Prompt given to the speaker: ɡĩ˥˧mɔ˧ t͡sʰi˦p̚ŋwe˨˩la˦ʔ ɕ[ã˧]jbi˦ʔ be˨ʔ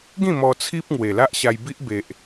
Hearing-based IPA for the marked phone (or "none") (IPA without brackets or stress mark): a˧